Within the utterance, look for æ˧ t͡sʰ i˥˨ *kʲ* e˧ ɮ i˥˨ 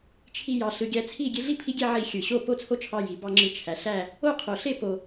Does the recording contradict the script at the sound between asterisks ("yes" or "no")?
yes